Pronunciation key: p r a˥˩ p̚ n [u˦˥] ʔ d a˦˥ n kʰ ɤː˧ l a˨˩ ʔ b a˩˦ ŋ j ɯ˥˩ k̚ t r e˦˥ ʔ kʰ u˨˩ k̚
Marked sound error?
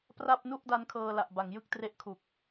yes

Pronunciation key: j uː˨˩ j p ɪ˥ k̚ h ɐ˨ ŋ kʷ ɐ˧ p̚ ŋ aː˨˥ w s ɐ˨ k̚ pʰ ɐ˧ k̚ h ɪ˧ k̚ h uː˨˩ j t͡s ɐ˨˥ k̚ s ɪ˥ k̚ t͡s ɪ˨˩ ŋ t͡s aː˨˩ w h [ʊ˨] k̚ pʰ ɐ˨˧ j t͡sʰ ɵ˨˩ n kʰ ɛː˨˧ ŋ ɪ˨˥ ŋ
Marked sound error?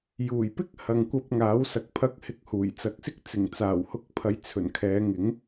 yes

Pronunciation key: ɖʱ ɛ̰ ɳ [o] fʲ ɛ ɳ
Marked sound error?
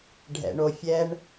no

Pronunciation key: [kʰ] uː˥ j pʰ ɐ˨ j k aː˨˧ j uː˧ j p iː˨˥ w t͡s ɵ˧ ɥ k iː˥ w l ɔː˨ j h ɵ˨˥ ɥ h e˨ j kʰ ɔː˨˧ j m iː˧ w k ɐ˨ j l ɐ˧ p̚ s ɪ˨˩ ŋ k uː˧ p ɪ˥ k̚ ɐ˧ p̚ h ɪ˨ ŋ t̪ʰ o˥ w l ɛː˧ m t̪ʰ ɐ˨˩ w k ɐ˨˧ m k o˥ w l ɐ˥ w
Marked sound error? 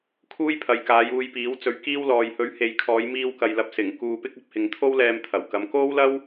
no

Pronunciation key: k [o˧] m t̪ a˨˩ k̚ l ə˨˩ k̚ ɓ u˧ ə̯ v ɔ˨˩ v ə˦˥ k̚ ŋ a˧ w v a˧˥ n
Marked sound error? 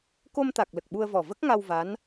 no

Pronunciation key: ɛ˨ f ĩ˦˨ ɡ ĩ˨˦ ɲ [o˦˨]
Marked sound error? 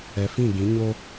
yes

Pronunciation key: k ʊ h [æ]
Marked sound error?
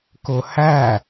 no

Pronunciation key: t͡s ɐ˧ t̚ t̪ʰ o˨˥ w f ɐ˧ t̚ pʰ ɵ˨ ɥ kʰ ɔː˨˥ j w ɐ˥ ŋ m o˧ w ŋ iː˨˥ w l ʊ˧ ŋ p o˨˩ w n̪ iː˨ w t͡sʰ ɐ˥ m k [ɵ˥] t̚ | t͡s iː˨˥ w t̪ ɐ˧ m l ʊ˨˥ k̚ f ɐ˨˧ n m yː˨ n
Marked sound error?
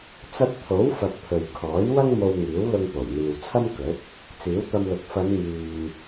yes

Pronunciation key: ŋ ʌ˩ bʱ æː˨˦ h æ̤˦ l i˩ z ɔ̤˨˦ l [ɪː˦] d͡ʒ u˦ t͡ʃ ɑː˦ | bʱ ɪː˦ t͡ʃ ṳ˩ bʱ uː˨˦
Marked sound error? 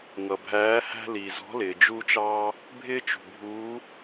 yes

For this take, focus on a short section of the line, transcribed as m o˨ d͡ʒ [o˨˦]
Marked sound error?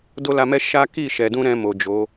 no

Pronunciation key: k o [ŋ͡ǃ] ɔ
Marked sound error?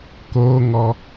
yes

